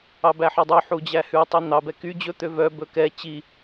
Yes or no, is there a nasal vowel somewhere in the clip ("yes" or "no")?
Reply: no